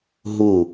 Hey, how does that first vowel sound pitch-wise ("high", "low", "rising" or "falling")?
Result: falling